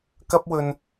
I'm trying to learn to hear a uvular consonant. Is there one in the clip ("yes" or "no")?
no